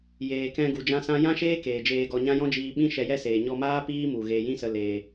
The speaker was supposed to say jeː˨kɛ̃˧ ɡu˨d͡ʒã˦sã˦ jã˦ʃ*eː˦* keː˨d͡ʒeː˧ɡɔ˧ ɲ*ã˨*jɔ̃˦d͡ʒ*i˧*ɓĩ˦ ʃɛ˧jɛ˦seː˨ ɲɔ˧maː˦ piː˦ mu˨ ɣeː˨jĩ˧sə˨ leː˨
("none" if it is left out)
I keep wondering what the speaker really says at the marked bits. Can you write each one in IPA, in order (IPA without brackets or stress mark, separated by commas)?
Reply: eː˦, ã˦, iː˧